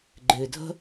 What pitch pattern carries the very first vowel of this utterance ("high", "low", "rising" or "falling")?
low